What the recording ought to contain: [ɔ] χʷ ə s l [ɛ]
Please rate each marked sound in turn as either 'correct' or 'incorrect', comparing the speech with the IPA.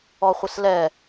correct, correct

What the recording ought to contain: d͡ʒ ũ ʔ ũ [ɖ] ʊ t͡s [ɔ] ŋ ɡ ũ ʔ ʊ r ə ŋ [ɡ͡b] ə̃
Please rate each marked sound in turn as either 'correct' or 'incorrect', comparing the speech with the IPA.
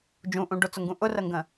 correct, incorrect, incorrect

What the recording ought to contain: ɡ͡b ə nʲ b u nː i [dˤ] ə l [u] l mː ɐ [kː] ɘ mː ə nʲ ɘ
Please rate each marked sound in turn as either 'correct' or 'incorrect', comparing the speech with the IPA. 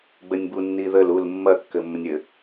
incorrect, correct, correct

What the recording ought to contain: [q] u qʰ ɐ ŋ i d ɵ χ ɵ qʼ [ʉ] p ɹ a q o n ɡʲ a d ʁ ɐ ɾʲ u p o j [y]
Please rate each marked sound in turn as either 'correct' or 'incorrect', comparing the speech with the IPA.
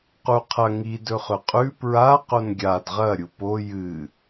correct, correct, incorrect

